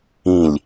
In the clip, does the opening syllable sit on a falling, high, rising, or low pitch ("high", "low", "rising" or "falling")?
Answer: falling